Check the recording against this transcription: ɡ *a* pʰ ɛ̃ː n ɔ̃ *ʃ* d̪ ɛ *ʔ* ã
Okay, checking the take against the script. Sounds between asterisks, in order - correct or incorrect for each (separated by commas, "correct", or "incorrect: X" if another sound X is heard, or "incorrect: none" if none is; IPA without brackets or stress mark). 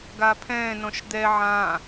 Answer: correct, correct, incorrect: ʕ